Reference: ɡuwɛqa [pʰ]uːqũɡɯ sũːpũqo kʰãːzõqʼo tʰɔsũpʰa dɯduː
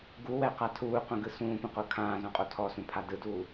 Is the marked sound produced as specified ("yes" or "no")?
no